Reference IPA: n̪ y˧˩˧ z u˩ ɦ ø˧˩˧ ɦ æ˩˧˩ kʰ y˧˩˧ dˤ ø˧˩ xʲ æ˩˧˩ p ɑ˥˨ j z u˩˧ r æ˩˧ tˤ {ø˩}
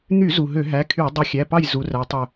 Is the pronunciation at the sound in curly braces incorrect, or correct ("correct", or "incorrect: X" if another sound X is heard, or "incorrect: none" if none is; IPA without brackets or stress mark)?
incorrect: ø˧˩